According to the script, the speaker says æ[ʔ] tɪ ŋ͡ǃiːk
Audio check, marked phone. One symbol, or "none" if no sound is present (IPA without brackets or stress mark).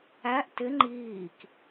ʔ